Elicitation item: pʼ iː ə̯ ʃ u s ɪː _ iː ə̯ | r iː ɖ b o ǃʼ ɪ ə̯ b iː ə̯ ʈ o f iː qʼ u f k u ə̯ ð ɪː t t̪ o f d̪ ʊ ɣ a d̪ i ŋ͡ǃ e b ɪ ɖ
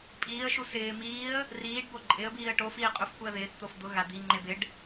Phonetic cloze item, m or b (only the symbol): m